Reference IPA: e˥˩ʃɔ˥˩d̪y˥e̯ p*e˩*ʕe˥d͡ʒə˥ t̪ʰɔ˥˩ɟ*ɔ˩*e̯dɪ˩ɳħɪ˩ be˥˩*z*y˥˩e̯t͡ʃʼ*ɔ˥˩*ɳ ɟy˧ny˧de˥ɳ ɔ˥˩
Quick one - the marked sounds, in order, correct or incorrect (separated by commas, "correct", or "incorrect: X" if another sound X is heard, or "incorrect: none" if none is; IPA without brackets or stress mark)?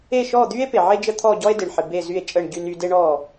correct, incorrect: ɔ˥, correct, incorrect: ə˥˩